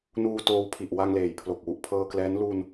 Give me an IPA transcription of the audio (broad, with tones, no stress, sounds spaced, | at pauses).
n uː˧ t oː˧ w pʰ i˨˩ ʔ w a˧ ŋ l eː˨˩ j pʰ l o˨˩ k̚ w u˨˩ ʔ pʰ ɤː˧ k l ɛː˦˥ n l u˧ n